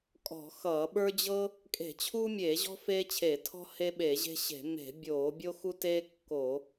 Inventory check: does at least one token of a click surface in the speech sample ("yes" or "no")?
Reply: no